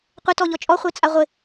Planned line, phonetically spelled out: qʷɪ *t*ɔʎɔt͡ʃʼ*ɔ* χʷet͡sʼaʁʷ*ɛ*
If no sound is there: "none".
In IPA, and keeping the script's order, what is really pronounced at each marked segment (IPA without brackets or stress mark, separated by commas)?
t, ɔ, ɪ